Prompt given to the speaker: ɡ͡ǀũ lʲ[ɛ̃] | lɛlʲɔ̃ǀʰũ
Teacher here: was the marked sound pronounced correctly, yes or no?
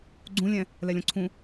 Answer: yes